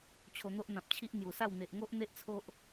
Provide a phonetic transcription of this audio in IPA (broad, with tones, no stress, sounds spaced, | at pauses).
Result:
t͡ɕʰ o˧ n̪ o˦ ʔ n̪ ã˨ p̚ t͡ɕʰ i˦ ʔ n̪ j u˨˩ s a˥˧ w n̪ e˨ ʔ ŋ o˦ ʔ n̪ e˦ ʔ t͡sʰ o˦ ʔ